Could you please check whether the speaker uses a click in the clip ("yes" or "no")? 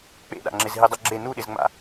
yes